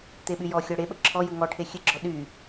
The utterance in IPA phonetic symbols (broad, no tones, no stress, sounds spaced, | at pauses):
t̪ e ɓ y j ɔ xʲ ɔ ɽ e ɓ ə ǁʰ ɔ j ɯ ŋ ɔ ʈʰ e xʲ ɨ ɡ͡ǁ ɔ ɗ y